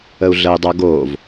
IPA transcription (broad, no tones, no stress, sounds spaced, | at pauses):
ə u̯ ɮ ə i̯ dˤ ɜ ɡ o v